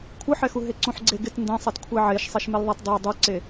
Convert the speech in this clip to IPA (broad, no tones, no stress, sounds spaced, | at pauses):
kʷʰ ɯ ħ ɛ x u ɦ e ǀ ũ ħ ɡ͡ǀ e ɡ ɪ t n d ẽ sˤ ɛ t kʷʰ ɛ ʕ e ʃ sˤ e ʃ m e l ðˤ a t dˤ e dˤ u ǀ e